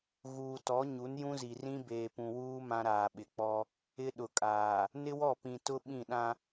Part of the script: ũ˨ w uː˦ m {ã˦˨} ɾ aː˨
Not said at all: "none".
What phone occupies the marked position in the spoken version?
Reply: ã˦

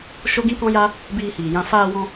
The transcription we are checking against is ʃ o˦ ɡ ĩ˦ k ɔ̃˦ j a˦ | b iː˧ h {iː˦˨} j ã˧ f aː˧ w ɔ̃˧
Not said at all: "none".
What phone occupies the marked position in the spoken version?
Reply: iː˨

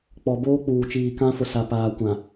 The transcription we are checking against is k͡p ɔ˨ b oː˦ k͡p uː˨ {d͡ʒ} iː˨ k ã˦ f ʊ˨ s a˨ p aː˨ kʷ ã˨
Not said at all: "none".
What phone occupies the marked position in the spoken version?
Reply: t͡ʃ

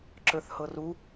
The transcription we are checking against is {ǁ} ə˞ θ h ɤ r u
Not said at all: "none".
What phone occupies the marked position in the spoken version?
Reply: ǁ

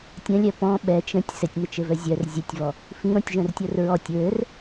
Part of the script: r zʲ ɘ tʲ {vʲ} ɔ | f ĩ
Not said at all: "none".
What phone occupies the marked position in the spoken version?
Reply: v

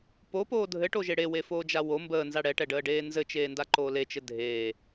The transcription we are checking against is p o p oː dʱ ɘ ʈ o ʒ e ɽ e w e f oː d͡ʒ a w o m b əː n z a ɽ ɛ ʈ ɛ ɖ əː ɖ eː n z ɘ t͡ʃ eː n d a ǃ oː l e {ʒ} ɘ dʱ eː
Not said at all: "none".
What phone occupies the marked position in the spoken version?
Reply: t͡ʃ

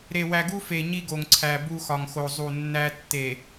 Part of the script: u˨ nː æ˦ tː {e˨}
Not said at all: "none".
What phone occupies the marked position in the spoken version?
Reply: e˨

